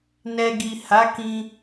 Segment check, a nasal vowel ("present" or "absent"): present